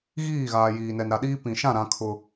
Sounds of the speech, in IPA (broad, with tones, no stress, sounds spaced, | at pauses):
ɣ iː˦˨ ɣ aː˨ j iː˨ n ɛ˨ n ɾ a˨ ɗ iː˦ p ĩ˨ ʃ ã˦˨ ɾ ã˦ kʰ ʊ˦